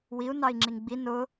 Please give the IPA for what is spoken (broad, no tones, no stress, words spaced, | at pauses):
wiu̯ nɑi̯ŋ͡ǁiŋɡ͡bi nʊ